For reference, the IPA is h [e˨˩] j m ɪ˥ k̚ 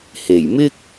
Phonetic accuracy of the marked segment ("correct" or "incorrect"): correct